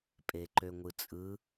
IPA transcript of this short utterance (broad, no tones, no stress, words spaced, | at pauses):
pʼeǃøŋʷɯt͡sʼɯ